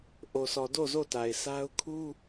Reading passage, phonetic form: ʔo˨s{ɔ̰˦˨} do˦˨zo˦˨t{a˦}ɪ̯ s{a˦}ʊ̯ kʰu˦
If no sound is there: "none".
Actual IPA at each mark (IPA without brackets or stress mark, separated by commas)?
ɔ˨, a˨, a˦